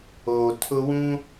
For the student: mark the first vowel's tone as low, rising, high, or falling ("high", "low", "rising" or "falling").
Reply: low